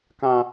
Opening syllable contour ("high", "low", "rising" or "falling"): high